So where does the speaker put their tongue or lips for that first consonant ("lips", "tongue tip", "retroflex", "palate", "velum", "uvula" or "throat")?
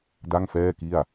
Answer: tongue tip